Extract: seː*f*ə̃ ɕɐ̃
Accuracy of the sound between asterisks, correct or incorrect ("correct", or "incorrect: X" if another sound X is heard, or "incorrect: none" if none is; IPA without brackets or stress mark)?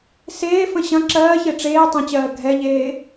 correct